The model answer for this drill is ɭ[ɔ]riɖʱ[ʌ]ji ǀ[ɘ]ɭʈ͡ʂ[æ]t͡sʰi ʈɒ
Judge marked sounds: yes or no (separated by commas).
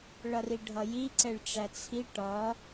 no, yes, no, yes